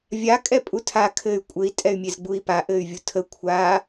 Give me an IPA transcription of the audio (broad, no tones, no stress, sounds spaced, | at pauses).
vʲ a kʼ ɛ pʼ u tʰ a kʰ ɘ y̯ kʷʼ ɘ i̯ tʼ ɛ y̯ mʲ e z ɡ͡b u i̯ p a ʔ ɘ y̯ vʲ u tʰ ə kʷʰ a